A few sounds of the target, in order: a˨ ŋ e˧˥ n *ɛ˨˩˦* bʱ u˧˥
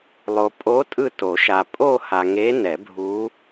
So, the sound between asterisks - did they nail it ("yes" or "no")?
yes